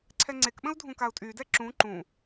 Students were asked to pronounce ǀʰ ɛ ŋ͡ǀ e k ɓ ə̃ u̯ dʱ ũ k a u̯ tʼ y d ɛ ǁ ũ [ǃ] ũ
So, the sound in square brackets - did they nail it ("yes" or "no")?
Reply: yes